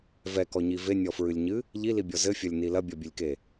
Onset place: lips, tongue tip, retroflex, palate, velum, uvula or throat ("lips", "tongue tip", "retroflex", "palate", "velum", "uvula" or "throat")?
lips